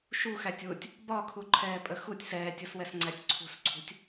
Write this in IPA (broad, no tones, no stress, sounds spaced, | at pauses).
ʃ u x æ tʲ w u tʲ | b ɒ kʰ u ǃʰ ɛː pʼ ə x u tʲ s ɛː tʲ u s w ɛ s ŋ͡ǀ æ tʲ ǀʰ ṳ s ǀʰ ṳ tʲ